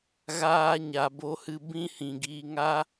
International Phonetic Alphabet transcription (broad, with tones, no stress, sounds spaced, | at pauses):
ɣ aː˧ ɲ a˨ b o˧ h ɨ˧ b ĩ˦ h ĩ˨ ɡ iː˧ ŋ a˦